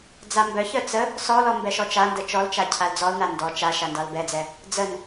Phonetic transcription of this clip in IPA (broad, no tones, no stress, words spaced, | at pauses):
d͡zambœçœ t͡sə | sɔlɔ mbɛʃɔt͡ʃandə t͡ʃɔlt͡ʃa cʰald͡zɔlna ndɔ t͡ʃa ʃandɑlbɛd͡zɛ | d͡zən